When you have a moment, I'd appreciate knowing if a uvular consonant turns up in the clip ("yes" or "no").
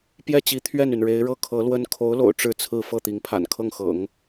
no